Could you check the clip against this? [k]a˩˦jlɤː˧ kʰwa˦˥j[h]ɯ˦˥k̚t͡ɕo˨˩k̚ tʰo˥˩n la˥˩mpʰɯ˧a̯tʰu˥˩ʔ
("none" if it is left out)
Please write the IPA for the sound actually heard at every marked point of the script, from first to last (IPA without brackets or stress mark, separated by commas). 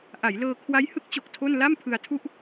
ʔ, h